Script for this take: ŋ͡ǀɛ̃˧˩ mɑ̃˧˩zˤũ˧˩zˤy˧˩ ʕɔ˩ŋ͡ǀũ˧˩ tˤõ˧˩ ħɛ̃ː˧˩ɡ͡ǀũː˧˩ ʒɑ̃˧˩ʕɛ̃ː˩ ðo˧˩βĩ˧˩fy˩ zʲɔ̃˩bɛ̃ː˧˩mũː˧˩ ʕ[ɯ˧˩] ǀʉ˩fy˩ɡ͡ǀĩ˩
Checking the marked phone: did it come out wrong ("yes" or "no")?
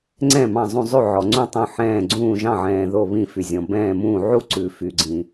yes